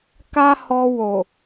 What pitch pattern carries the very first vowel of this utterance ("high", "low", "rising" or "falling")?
high